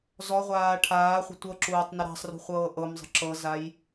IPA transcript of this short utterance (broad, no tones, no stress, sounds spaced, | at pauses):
z ɔ ʁʷ aː ʈʰ aː χʷ ə̤ tʷ ɤ ǁ uː tˤ n ə ɾ a̤ sˤ r ṳ χʷ ɤː ʔ ɤ m zˤ ə̤ ǁ ɤ z a j